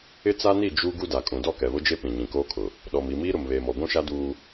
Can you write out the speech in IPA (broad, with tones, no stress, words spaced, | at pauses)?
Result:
ɪ˦t͡sa˦ni˦˨ d͡ʒu˦ ɡu˦da˨kʼũ˨ dɔ˦˨kɛ˨βʊ˦d͡ʒe˦ pĩ˨ɲĩ˨koː˦kʰʊ˨ | ɗɔ˨m i˨miː˦ ɾʊ˨mβeː˨mɔ˨ ɡʷũ˦ʃa˦ duː˦